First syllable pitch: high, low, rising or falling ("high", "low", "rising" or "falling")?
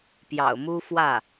low